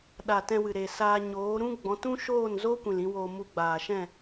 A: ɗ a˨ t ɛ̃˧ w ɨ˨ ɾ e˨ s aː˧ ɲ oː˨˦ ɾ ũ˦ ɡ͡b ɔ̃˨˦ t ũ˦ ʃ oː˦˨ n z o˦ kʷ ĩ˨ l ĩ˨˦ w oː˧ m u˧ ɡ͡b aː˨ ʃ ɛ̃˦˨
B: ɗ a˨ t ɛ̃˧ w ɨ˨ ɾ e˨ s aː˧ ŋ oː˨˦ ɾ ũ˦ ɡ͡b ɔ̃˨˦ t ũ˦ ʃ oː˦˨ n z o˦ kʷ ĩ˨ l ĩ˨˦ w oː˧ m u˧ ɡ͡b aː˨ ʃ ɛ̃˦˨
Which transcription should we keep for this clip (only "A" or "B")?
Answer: A